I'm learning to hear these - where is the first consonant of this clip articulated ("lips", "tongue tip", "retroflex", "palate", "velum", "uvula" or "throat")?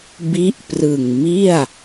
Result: lips